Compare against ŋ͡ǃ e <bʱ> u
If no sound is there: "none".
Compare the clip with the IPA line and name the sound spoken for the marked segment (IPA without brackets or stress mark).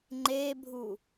bʱ